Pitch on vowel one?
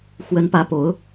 rising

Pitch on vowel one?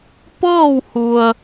falling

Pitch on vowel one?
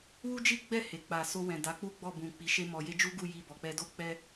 high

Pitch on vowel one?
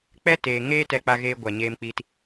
high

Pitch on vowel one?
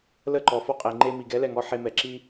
falling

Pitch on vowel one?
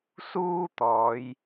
high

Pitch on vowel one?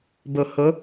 low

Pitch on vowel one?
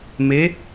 rising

